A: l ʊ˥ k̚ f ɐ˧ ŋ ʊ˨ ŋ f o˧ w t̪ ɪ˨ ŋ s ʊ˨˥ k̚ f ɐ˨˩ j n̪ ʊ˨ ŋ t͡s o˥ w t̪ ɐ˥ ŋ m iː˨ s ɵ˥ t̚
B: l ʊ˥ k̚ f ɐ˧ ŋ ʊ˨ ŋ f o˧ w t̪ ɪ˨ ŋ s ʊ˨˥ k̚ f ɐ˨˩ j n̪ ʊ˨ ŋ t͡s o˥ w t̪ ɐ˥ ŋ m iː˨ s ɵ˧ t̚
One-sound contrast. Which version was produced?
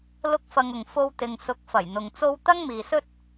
A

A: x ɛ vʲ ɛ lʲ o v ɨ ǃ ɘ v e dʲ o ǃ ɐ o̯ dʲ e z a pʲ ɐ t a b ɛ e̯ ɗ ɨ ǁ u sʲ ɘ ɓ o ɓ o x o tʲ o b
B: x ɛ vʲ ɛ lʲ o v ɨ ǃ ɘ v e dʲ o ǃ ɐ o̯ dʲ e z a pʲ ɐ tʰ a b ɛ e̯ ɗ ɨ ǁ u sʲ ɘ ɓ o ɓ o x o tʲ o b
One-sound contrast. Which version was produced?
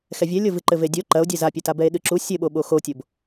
A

